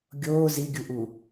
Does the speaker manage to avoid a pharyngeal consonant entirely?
yes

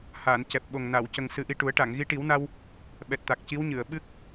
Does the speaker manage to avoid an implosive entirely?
no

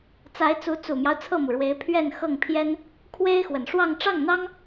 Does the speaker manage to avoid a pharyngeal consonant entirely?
yes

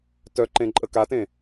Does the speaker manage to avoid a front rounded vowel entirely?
no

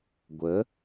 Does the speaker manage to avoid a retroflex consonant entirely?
yes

